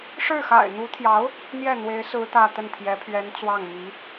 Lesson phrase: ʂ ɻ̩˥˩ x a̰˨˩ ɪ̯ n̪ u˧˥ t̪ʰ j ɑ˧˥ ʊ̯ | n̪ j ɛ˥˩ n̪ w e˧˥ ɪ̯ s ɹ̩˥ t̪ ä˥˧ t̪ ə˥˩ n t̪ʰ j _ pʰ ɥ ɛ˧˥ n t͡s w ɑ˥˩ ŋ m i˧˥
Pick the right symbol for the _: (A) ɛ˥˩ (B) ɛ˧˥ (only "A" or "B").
B